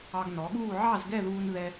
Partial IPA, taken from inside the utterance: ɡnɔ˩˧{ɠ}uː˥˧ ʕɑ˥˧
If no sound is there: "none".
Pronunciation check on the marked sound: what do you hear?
ɠ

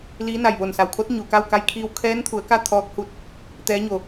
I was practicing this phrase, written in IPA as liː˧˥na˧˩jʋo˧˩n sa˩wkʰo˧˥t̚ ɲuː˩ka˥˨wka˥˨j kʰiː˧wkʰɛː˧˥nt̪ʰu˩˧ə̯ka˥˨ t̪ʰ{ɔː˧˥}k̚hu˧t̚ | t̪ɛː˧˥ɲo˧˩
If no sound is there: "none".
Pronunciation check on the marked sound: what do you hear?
ɔː˧˥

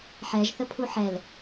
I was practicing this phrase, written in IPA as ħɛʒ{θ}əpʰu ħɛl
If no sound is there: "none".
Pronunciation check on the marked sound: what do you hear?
θ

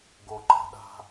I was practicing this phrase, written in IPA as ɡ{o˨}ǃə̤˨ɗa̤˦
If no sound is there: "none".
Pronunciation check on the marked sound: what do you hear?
o˨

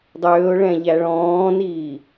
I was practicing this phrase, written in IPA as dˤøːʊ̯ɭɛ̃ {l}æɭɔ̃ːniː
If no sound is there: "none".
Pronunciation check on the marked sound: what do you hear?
ʎ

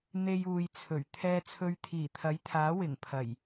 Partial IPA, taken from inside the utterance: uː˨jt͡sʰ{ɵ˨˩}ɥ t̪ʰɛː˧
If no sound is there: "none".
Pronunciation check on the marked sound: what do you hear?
ɵ˨˩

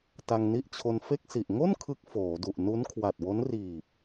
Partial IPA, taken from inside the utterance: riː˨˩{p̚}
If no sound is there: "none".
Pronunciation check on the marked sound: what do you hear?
p̚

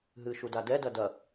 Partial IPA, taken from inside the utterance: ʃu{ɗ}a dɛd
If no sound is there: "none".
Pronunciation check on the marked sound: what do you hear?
d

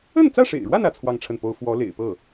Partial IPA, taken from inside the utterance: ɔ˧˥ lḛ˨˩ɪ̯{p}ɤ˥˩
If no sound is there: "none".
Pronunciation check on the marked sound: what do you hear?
p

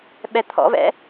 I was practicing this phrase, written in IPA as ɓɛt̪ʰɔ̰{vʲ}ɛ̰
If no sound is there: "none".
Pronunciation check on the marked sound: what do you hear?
v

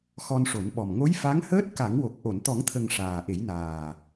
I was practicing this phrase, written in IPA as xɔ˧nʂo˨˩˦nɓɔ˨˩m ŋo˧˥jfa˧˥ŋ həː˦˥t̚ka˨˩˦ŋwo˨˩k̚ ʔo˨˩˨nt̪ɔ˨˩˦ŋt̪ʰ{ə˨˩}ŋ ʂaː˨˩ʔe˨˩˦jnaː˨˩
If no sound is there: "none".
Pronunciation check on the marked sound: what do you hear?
ə˨˩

